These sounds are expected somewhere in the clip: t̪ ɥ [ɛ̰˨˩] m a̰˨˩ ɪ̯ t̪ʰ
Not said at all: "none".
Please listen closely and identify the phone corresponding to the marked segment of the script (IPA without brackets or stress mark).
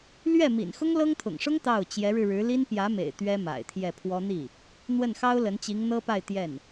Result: ɛ˥